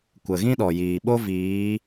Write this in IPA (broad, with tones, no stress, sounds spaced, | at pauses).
kʷ ə˨ ɣ ĩ˦ ɗ ɔ˨ j iː˨ ɓ o˦ v iː˨˦